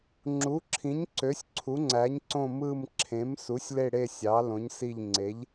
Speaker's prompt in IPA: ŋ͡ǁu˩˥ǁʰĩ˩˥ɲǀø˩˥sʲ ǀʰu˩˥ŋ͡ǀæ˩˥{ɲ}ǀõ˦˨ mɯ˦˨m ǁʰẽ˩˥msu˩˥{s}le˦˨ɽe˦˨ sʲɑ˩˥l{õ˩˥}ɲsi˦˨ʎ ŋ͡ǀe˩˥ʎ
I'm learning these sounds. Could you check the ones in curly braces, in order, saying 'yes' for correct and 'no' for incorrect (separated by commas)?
yes, no, yes